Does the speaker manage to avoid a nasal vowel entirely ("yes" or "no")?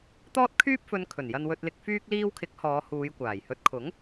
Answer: yes